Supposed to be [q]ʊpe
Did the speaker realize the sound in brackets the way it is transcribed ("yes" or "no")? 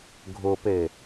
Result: no